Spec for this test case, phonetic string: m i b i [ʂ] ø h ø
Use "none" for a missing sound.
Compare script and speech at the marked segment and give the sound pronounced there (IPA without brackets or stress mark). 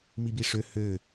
ʂ